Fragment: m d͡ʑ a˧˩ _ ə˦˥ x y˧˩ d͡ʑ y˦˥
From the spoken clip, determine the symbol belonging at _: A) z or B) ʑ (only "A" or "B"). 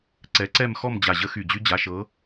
B